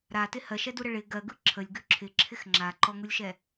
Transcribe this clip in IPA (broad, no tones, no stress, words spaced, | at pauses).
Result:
ɾatɪ hɜʃɛduɾə ɭɪ ɡɜɡɯ ǁʰəlʲɡʉ ǁʰɪǁʰɪx ŋ͡ǁaǃɔŋulʲʃɛ